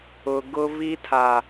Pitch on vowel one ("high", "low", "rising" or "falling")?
low